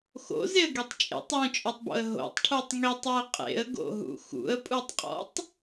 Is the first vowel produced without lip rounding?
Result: no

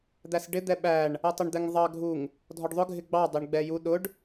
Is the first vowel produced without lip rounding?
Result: yes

